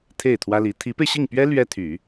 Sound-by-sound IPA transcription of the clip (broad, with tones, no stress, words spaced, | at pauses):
t̪ʰe˥˩ɪ̯t̪ʰwä˥li˧˥ t̪ʰi˧˥pe˧ɪ̯ɕi˥˩ŋpɥɛ˥ lɥɛ˥t̪ʰy˨˩˦